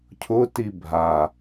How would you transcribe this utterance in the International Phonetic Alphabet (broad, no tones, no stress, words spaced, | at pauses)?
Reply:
cʰʊti bʱa